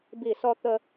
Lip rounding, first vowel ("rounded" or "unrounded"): unrounded